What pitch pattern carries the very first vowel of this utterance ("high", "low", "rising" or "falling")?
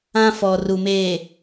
high